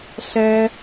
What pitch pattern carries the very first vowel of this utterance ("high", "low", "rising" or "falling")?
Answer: high